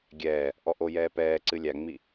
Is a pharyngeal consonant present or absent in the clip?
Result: absent